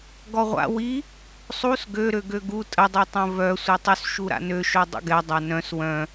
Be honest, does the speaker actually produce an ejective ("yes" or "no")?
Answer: yes